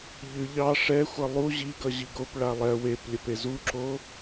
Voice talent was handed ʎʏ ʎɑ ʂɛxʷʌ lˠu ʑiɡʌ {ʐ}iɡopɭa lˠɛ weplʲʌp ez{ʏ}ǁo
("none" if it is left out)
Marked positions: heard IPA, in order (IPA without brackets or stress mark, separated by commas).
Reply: ʑ, u